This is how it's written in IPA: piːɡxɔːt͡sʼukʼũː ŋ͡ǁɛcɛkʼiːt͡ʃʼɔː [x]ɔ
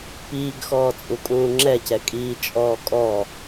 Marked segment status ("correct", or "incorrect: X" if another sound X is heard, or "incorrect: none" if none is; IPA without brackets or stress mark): incorrect: kʼ